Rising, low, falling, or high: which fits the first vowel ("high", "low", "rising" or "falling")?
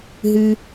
high